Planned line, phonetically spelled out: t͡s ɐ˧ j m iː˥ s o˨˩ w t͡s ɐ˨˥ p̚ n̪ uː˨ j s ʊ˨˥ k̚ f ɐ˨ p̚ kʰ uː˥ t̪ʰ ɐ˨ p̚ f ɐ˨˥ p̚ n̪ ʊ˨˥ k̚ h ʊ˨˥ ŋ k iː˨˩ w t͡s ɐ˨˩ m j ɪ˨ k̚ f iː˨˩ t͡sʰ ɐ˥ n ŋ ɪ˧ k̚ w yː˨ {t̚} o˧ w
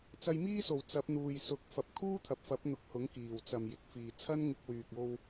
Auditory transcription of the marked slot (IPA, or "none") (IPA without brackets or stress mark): k̚